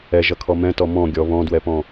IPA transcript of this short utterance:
ɛ ʒ ʌ kʰ ɔ m ɛ̃ t ɔ m ɔ̃ ɡʲ ɔ β ɔ̃ d w ɛ p ɔ̃

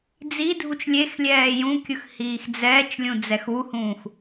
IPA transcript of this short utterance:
d͡z i dʱ u t͡ʃ lʲ e x lʲ ɛː j ũ kʲ ɯ x h iː x d͡z ɛː t͡ʃ lʲ ũ d͡z ɛ x u h ũː x

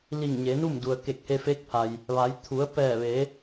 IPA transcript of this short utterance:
l i˧˩ ŋ ɲ e˩˧ n u˥˨ m d u˩ ə̯ k e˧˩ k̚ h e˧ f e˧˥ k̚ pʰ a˩ j | ʋ a˩˧ j t̪ʰ u˩˧ ə̯ p ɛː˧˩ ʋ eː˩˧

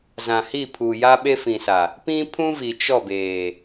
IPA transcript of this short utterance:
z ã˨ h i˦˨ pʰ u˨ j a˦ ɓ e˦ f ĩ˨ s a˨ | p ĩ˦ pʰ ũ˦ v i˨ t͡ʃ ɔ˦˨ b eː˨

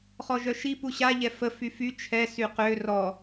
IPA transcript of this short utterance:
χ ɔ ʒ œ ʃ i p u ɕ a ʎ ɛ f ə f y f y t͡ʃʰ ɛ s y q ø r ɔ

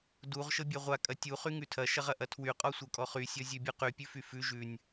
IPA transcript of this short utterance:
d u ʁ ʃ ɤ bʲ a ʁʷ a kʼ ɐ tʲ u χ y ŋ ʉ tʰ ɐ ʃ ɐ ʁ ɐ ʔ ɐ tʰ w y qʼ ɔ sʷ ɤ kʼ ɔ χ y sʲ ɔ zʲ ʉ bʲ u q y pʲ ʉ f y f ʉ ʒ ʉ nʲ

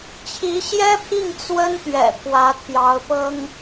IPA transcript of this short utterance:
t͡ɕʰ i˧˥ ɕ j ɛ˥ pʰ i˥˩ ŋ t͡s w ə˥ n t̪ ɥ ɛ̰˨˩ pʰ w ä˧˥ t̪ʰ j ɑ˧˥ ʊ̯ p ɤ˥ ŋ

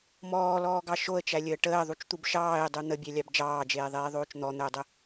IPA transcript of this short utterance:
m ɔː l ɔː ɡ ɑ ʃ o ə̯ t͡ʃ æ lʲ əː ʈ əː ðˤ u t͡ʃ t̪ u b ʃ ɑː ɪ̯ dˤ u n̪ ə bʲ æ lʲ ɑ b d͡ʒ ɑː d͡ʒ eː ðˤ eː ðˤ oː t͡ʃ n̪ ɔ n̪ əː dˤ ə

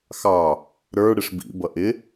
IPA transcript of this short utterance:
x ɑ | ɾ ə˞ ɽ ɪ ʂ b ḭ b ʌ ʔ ɪ

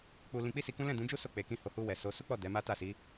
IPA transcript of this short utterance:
k͡p u˧ l ĩ˧ k͡p i˦ s i˧ k ũ˦ l ɛ̃˦˨ d ũ˨˦ d͡ʒ u˦ s o˦˨ k͡p e˨ k ĩ˧ h o˨ h u˧ w ɛ˨ s o˨˦ s u˦ k͡p ɔ˦˨ d ɛ˨˦ m a˦ t a˦˨ s i˨˦

